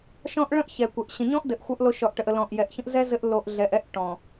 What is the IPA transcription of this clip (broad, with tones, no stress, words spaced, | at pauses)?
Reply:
ʃɔ̃˦ʔɭə̃˦ʔçɛ˨kʷɛ˨ʔ ɕə̃˨ɲɔ̃˦ʔdɘ˨ʔ xʷʌ˦ʔlo˦ ʃɔ˨ʔʈə˨ʔ ə˨lɔ̃˨ʔjɛ˨ʔçə̃˦ʔ zɛ˦ zɘ˦ʔ lo˨ʔ ɮɛ˨ʔɛ˦ʔ ʈɔ̃˨